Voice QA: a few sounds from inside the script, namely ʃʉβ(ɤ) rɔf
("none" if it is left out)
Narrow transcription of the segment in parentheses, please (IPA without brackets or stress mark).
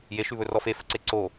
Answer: ɵ